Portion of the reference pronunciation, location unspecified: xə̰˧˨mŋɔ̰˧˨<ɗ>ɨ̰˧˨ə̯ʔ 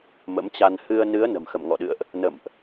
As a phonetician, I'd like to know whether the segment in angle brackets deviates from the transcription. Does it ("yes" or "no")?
no